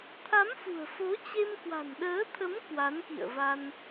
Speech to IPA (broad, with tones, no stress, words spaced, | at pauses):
t̪ʰa˨˦mfṳ˨˩ə̯fo˨˦ t͡ɕe˧m kwa̤˨˩nɗəː˨˦t̪ʰə˨˦m kwa˨˦nkḭ˧˨ə̯va˧n